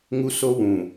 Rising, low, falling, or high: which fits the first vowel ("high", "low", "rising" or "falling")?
high